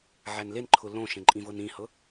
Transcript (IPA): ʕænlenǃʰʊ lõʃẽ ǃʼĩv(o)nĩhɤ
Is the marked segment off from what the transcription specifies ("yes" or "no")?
yes